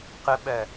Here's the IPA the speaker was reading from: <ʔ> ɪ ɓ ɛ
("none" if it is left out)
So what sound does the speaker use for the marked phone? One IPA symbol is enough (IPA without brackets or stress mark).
q